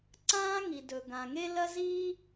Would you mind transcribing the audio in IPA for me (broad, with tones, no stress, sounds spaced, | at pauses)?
ǀ ãː˥ ŋ i˩ d ɵ˩ ɡ ã˩ ŋ e˥ l ɐ˥ z iː˥